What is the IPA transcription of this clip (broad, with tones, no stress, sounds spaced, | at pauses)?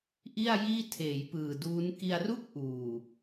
ʔ i˥˩ a̯ j iː˥˩ tʰ eː˩˦ j p ɯː˨˩ d uː˦˥ n k i˧ a̯ r u˥˩ k̚ ʔ uː˨˩